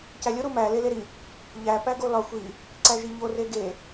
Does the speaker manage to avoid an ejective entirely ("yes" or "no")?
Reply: yes